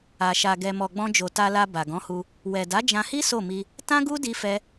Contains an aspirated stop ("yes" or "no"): no